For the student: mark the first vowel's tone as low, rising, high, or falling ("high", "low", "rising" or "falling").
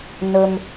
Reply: low